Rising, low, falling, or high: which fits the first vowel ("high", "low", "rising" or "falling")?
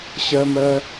high